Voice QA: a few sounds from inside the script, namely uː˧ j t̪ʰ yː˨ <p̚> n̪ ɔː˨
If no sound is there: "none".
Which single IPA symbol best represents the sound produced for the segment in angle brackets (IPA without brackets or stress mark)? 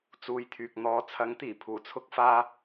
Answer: k̚